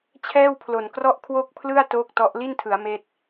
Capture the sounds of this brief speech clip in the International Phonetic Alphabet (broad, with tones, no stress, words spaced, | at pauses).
t͡ɕʰɛː˥˩wpʰlo˨˩nkrɔ˥˩ʔ kʰwo˥˩k̚pʰlɯ˥˩a̯ toː˥˩k̚tɔ˦˥ʔ li˥˩ntʰɯ˩˦a̯ meː˥˩t̚